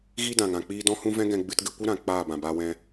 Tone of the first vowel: high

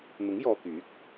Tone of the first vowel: rising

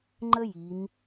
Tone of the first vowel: high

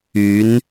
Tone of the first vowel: rising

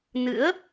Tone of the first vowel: rising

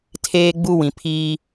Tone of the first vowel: high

